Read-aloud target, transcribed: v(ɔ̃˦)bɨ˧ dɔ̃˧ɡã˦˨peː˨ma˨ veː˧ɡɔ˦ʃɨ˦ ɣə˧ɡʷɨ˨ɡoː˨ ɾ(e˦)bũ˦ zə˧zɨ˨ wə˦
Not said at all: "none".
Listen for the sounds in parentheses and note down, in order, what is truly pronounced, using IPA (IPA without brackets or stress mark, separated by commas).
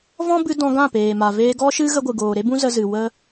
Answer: ɔ̃˦, e˦